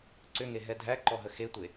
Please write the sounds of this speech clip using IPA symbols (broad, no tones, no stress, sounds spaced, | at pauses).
ǀ ʏ ŋ e ɦ ɛ dʱ æ ǃ ɔ ɦ ə x e tʷ e